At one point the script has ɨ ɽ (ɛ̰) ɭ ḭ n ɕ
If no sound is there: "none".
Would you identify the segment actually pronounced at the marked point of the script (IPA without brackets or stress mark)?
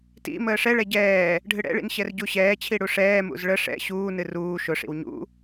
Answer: ɛ̰